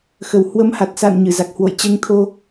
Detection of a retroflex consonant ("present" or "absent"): absent